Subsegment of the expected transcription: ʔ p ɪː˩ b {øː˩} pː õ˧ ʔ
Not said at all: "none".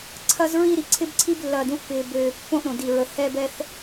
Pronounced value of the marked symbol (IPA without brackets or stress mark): øː˩